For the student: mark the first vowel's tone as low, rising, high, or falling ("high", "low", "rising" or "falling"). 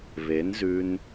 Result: rising